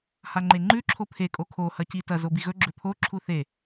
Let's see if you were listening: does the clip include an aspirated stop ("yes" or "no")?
yes